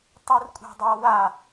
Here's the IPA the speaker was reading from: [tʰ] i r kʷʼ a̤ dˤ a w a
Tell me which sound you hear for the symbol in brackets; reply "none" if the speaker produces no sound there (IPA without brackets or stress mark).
tˤ